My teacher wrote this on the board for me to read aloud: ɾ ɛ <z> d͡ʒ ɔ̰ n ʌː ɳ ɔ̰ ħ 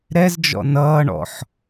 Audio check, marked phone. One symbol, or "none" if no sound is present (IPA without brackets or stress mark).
z